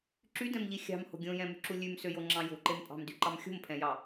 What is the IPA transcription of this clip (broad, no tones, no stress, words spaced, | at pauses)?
ǁydɛ̃mʎi xʲɑ̤mho̤ ɡʲõjɛ̃myǁu lʲʉmsøjoŋ͡ǁɑ̃ jo̤ǃem pʼɑ̤mdyǃɑm xʲo̤mpʰɛ̃jɑ